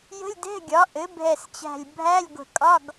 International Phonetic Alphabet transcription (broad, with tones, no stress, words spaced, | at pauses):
jə̤˧˥˧lʲdɛ̤˧˥˧ɡʲɒ˩˥ ʔɘ˩˥ bʱɛ˧˩st͡ɕæ̤˧˩lʲ bʱæ˧˥˧lʲɡʷə̤˧˩kʼɒ˧˥˧ɡ